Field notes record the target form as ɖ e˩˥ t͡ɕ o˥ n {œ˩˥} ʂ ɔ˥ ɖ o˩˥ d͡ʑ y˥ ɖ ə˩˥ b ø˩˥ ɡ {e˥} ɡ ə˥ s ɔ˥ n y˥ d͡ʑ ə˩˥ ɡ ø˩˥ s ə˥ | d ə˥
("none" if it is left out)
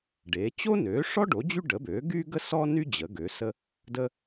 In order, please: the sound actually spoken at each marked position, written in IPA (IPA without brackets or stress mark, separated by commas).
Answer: ø˩˥, y˥